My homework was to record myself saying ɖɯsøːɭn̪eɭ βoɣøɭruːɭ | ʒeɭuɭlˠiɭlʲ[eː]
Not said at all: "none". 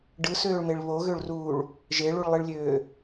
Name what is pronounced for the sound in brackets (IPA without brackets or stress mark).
øː